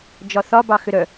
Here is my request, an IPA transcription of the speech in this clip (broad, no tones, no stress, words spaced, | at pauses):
d͡ʒɒθɒbɑ xʏɾœ